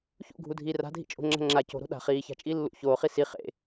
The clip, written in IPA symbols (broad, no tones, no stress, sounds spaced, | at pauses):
ç ṵ ɡʱ u dʱ iː r a̤ dʱ ḭ t͡ʃʼ o̤ ŋ͡ǁ a̤ ŋ͡ǁ a c o̤ ɾ o̤ ɗ a̤ χ iː ç a̤ t͡ʃʼ iː lː ṵ ç oː χ i s i χ ḛ